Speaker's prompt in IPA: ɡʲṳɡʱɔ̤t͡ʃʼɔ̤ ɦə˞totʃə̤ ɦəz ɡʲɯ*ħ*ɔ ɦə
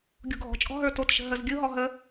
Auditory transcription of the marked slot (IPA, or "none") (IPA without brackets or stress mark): ɦ